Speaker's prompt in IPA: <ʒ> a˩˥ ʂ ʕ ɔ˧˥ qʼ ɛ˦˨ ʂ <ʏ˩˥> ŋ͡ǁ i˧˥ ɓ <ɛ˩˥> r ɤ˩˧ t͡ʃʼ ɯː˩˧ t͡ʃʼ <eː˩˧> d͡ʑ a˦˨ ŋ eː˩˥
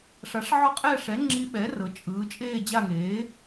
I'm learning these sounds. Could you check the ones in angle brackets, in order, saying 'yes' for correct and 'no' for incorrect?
no, no, yes, no

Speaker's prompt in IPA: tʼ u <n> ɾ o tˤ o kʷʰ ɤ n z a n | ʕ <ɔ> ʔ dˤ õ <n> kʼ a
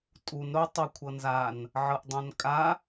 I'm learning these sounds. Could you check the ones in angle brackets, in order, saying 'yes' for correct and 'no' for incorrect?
yes, no, yes

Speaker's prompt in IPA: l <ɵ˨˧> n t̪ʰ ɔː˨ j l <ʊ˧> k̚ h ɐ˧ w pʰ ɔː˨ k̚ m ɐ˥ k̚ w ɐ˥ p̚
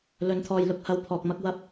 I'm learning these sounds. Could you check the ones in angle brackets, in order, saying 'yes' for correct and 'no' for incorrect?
yes, yes

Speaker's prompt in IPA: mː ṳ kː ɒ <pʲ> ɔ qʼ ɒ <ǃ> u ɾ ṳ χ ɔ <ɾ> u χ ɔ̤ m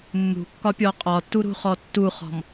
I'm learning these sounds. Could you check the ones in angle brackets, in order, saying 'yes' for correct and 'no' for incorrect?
yes, no, no

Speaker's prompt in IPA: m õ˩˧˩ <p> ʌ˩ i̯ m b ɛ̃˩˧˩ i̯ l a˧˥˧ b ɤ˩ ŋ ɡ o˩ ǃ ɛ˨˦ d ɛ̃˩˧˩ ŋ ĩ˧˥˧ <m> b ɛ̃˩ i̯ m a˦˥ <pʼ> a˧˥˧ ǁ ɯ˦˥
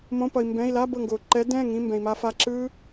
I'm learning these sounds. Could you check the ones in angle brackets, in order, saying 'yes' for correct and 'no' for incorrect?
yes, yes, no

